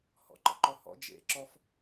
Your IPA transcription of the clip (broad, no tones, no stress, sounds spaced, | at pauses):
h ɔ̰ ǃ ə̰ ǃ ɔ h ɔ̰ d͡ʒ ḛ ǁ ɔ f